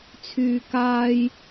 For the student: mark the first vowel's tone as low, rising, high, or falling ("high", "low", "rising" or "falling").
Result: low